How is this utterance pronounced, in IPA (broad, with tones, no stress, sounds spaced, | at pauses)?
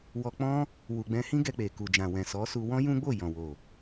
w ɔ˧ k͡p ɔ̃˦ | w u˨ ɡ͡b ɛ̃˧ h ĩ˦ ɡ ɛ˧ k͡p e˨ k u˨ d͡ʒ ã˨ w ɛ̃˨ s ɔ˨˦ s u˧ w ɔ̃˦ j ũ˦ ɡ͡b o˦˨ j ɔ̃˨ w o˨